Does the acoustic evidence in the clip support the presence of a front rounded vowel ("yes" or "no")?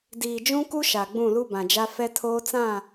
no